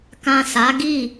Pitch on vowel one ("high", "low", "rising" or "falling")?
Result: low